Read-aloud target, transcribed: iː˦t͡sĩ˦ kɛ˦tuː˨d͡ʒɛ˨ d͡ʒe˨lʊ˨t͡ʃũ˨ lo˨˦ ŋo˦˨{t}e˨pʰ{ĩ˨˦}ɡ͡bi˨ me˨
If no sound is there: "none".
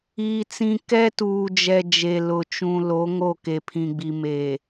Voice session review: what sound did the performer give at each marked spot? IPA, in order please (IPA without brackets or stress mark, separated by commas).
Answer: k, ĩ˨